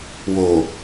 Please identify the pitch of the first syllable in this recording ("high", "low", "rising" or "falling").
low